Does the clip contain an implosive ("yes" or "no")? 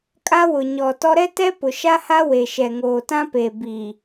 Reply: no